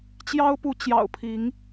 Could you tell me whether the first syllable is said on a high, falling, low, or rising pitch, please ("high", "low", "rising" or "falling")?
high